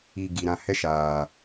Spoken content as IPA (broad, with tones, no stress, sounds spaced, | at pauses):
i˧ ɡ i˨ ɾ ã˧ h ɛ˦ ʃ aː˨